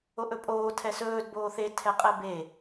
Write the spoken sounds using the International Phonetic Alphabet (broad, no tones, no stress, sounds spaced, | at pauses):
o ʔ ɵ pʼ oː tʰ ɛ s ɵː d b oː θ e tʰ ɛ qʼ ɛ b e